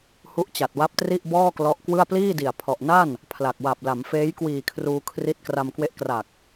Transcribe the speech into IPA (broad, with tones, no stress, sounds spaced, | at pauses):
h u˦˥ ʔ t͡ɕ a˨˩ t̚ w a˦˥ p̚ t r i˥˩ ʔ b ɔː˥˩ k l ɔ˦˥ ʔ k w ɯ˥˩ a̯ p l iː˥˩ d i˨˩ a̯ pʰ ɔ˨˩ ʔ n a˥˩ n | pʰ l a˨˩ k̚ w a˨˩ p̚ l a˩˦ m f eː˦˥ j k w iː˨˩ kʰ r uː˧ kʰ r i˦˥ t̚ k r a˧ m k w e˦˥ ʔ k r a˨˩ k̚